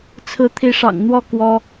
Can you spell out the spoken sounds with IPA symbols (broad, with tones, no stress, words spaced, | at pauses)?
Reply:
t͡sʰɹ̩˨˦t̪ʰi˨˦ʂɑ̰˨˩ŋ n̪wɔ˥˨ kwɔ˦